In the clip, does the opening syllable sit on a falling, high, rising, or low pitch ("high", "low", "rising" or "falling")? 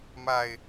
low